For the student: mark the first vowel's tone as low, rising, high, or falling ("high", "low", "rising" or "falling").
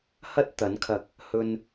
high